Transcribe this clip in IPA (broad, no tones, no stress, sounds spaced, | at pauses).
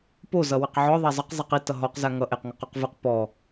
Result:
p o z ʌ w ɘ q ʕ ɔ ðˤ a zˤ ʌ q zˤ i q i t ʌ ɦ ɔ q z a ŋ ʌ ʔ e q ŋ ʌ q ɔ q v ɯ q p ɔ